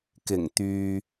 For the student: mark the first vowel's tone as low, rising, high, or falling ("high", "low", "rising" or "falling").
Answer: low